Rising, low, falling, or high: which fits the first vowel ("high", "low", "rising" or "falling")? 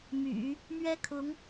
low